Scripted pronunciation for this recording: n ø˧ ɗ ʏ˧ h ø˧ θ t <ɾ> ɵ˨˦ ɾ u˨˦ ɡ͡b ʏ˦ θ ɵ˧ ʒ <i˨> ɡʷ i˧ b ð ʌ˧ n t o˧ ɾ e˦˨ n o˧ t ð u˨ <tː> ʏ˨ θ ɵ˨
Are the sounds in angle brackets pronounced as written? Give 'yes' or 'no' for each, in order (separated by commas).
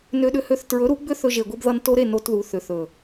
no, no, no